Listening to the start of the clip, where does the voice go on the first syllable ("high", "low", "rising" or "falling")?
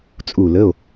falling